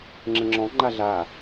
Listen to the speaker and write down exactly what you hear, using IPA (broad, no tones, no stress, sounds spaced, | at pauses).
ŋ͡ǁ ə̃ ŋ͡ǁ ɔ̃ ŋ͡ǃ a ɮ a